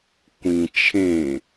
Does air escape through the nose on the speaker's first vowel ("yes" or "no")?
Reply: yes